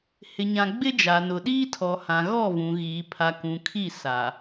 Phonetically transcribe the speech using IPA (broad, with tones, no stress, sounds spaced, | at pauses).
h ɪ˨ ɲ ã˨ ɡ͡b ɪ˦ d͡ʒ a˨ n ʊ˨ ɗ iː˦ tʰ ɔ˨ h ã˨ ɣ ɔ˦˨ v ũ˨ ɣ iː˨ pʰ a˨ k ũ˨ kʰ i˦˨ s a˨